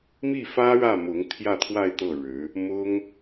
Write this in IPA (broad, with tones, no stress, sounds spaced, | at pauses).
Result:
m i˥˩ f ä˥ ɻ ä˥˩ m ʊ˧˥ ŋ t̪ʰ j ä˥˧ t̪ʰ w a˥˧ ɪ̯ t̪ ɤ˥˩ ɻ ɻ̩˧˥ | m ʊ˥ ŋ